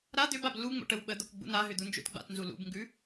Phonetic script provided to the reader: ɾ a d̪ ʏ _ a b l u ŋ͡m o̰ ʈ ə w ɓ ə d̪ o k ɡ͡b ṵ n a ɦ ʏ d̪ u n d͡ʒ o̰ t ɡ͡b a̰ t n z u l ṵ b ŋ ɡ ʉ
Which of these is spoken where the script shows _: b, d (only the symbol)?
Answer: b